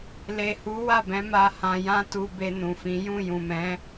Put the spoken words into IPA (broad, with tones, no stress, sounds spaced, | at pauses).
l e˨ h u˨˦ w a˦˨ b ɛ̃˨˦ m a˧ h ã˧ j ã˦ t u˧ b e˧ n ũ˨ f ĩ˨˦ j ũ˦˨ j ũ˨ m ɛ̃˨˦